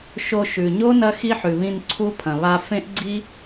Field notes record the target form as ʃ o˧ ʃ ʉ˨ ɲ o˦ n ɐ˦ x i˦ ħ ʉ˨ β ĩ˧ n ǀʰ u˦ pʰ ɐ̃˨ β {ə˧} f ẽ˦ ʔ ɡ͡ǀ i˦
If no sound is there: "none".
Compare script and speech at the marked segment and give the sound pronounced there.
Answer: a˧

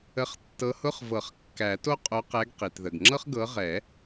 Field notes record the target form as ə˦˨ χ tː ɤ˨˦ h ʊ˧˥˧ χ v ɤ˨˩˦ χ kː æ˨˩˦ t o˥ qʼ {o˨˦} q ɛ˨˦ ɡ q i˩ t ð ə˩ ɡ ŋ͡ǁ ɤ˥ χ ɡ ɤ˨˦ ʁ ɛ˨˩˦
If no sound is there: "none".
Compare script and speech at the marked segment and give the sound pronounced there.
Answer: o˨˦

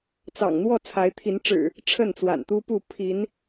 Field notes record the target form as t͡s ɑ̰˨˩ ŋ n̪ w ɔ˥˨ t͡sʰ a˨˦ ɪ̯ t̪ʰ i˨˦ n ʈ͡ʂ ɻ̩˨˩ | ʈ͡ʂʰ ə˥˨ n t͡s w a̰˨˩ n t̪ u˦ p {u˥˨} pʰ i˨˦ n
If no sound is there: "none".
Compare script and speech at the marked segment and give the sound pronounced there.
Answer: u˥˨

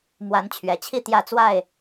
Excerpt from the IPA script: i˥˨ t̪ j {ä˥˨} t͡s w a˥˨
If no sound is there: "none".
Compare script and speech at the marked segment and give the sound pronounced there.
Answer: ä˥˨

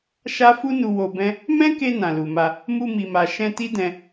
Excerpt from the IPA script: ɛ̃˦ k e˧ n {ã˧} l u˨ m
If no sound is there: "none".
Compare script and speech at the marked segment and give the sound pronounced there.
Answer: ã˨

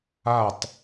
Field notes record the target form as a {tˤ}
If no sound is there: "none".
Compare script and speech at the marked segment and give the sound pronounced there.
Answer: tˤ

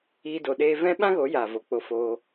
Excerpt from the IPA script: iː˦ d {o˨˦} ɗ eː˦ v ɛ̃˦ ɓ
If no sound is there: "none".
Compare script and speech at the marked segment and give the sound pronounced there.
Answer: o˧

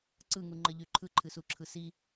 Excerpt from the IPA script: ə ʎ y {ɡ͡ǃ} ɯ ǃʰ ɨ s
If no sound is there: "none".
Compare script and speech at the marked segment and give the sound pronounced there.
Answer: ǃʰ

